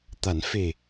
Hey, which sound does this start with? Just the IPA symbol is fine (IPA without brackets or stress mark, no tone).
t̪